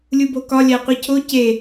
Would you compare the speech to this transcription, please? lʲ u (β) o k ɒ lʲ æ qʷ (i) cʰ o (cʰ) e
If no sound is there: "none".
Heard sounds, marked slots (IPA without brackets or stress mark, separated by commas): b, i, c